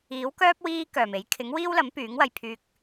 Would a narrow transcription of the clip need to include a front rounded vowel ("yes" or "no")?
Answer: yes